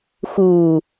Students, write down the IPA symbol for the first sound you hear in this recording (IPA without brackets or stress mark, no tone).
x